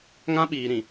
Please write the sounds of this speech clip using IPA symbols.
ŋã˦ɓiː˨ɾĩ˨

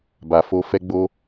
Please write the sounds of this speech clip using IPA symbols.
ba˨fo˧ fɛ˦ɡ͡bo˦

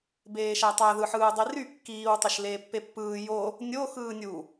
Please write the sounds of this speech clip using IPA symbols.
beːʃætˤæ ðɯħɯːdˤiry kːiːw tˤeʃleːpːepːɯː jo | nʲo xɯːnʲu

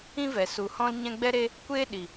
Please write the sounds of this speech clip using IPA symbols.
ĩ˦vɛ˨ su˨hɔ̃˦lɲɛ̃˦ ɡ͡bɛ˦ɾe˦ | kʷeː˦ɗi˨

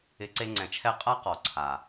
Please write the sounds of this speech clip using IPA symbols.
ɪ˨˦ǀe˧ŋ͡ǀɛ̃˨t͡ʃʰɛ˦˨ qʼa˦qɔ˨ǀʰa˨

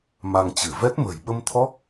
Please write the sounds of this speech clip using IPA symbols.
ma˧ŋt͡ɕɨ˧˩ vɛ˦˥t̚mə̤˨˩j ɓə˧mt̪ʰɔ˦˥k̚

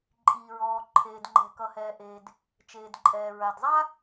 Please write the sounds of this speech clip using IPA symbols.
ǃʼiː˩ɹɔː˩ ǃʰeː˩dŋ͡ǃɛ̤˩ kʌ˩hɛː˩ ʔeː˩d | t͡ʃeː˩dǃʼɛː˩ɹa˩d zˤa˥

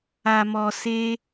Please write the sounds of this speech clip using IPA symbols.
a˨mɔ˨ se˧

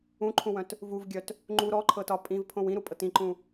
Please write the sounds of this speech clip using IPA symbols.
ũǃʰũwœ̃t | vuvɡʲœt | ŋ͡ǃu ɾɔǃʰɤtɒ pʼĩvpʰõw ĩɾupʼɤt ĩǃũ

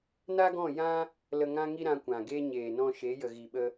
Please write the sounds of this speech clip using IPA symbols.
na˦ɡɔ̃˦˨ jã˦ | lə˧ŋã˦ŋi˦ ɾã˧kʷã˨ɡe˦ ɲeː˨ nɔ̃˧ʃe˨˦jə˨ ɣi˨ɓə˧

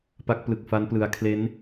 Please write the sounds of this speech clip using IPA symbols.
pa˦˥k̚plɯ˨˩k̚fa˦˥nplɯ˩˦a̯ kʰle˦˥n

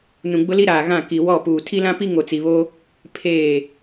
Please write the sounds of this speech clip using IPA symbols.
nũ˨ɡ͡bʊ˦li˦ɾaː˨ ɣã˦˨ki˨wɔ˦˨puː˨ tʰi˦lã˦pi˦ ŋo˨t͡si˨βoː˦ | pʰeː˦˨

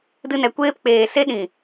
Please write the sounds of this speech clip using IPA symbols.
dɨ˧nɛ˨ kʷeː˧p k͡peː˨ se˦ɗĩ˨

